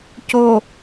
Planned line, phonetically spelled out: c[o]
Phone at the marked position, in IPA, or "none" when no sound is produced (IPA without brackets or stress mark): o